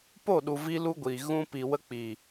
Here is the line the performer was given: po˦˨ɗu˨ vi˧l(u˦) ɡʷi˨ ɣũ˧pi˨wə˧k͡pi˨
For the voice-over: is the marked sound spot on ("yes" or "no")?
no